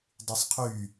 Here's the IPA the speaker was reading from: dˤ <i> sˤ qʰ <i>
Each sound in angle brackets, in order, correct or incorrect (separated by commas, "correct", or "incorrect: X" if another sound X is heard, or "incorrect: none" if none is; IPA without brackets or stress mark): incorrect: y, incorrect: y